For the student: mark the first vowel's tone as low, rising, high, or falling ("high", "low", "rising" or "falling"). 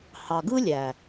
low